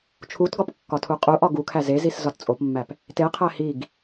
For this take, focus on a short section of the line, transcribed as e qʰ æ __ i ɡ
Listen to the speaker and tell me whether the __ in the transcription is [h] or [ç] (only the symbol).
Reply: h